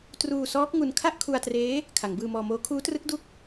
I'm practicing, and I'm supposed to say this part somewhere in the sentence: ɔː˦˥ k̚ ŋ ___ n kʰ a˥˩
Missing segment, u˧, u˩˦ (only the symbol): u˧